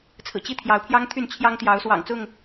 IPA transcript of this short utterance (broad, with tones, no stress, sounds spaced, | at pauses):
t͡sʰ ɹ̩˨˩ t͡ɕ i˥˨ t̪ʰ j ɑ˨˦ ʊ̯ pʰ j ɑ˦ ŋ t̪ʰ y˥˨ n t͡ɕʰ j ɑ˦ ŋ t̪ j ɑ˨˦ ʊ̯ s w ɑ̰˨˩ ŋ t͡s ʊ˥˨ ŋ